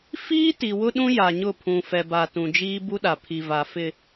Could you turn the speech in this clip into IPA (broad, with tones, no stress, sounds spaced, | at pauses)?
f iː˦ t i˨ w ʊ˦ ɗ ũ˦ j a˨ ɲ ʊ˦˨ pʰ ũ˨ f ɛ˨ b a˨ t ũ˨ d͡ʒ iː˦ b u˦ ɗ a˨ pʰ i˨ v a˨ f ɪ˨